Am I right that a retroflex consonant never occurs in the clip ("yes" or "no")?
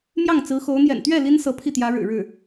no